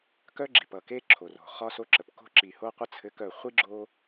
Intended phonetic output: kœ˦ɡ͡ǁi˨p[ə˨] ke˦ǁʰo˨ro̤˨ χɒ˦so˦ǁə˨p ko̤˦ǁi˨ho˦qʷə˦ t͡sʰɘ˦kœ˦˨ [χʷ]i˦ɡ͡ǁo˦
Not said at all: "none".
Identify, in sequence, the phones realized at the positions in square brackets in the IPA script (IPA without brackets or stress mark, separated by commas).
ʌ˨, χʷ